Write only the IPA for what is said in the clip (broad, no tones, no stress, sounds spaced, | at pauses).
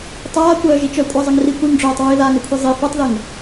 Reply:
tˤ aː kʷ œː ʒ i t͡ʃ œ kʷʼ a zˤ ə ŋ r i kʷ i ŋ ɖ͡ʐ œː tˤ ɹ i ð aː ŋ œ kʷʰ e zˤ i f œ tˤ ð ə ŋ